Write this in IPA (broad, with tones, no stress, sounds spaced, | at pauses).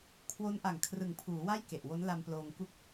kʰ w o˦˥ n ʔ a˨˩ ŋ kʰ r ɯ˨˩ ŋ pʰ uː˩˦ w a˥˩ j k e˨˩ ʔ w o˦˥ n l a˧ m p l oː˧ ŋ k u˥˩ k̚